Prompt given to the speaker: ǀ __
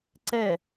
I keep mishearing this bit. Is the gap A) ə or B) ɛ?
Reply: B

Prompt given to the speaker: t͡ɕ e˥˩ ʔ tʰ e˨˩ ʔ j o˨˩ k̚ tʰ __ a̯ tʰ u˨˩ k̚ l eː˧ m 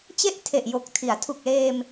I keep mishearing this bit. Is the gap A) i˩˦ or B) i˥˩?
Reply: A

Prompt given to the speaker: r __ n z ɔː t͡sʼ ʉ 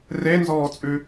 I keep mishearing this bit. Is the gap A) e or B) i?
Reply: A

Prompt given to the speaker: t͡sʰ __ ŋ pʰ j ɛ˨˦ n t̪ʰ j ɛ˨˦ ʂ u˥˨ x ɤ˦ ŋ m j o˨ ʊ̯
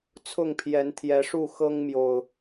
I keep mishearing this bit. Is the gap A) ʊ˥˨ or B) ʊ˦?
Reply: A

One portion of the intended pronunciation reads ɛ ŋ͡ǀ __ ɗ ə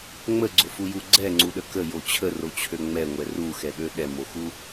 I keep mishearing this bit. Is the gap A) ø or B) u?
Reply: B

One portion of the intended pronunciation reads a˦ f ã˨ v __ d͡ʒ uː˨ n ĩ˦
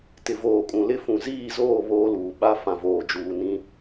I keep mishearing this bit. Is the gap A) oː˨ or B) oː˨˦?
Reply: A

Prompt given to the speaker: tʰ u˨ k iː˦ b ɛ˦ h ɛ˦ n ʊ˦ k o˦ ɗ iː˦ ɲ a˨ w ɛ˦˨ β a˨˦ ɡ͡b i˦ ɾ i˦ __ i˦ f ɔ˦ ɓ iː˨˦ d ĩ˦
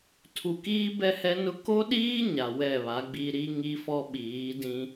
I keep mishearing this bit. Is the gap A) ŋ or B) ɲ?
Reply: A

